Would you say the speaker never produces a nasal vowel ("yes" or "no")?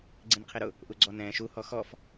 no